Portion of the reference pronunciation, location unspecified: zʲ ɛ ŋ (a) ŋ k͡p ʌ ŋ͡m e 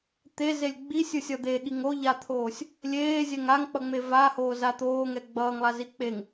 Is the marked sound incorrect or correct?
correct